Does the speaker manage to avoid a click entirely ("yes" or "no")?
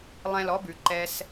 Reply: no